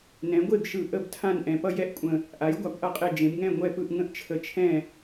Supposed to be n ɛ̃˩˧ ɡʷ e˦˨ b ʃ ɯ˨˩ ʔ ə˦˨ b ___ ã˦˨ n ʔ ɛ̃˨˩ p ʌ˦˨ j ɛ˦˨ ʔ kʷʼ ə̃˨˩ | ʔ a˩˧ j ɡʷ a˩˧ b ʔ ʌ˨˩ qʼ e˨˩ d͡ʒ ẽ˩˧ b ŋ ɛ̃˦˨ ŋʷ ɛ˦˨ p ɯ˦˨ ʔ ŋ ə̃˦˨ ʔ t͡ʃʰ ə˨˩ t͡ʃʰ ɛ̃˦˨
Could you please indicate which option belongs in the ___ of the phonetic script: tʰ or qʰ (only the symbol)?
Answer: tʰ